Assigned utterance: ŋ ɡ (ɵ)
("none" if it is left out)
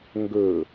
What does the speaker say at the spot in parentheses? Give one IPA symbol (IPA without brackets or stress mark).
ɵ